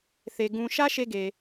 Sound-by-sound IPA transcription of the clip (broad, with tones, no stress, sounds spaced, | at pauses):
θ e˨ ɡ ũ˨ ʃ ä˦ ʃ e˦ ɡ e˨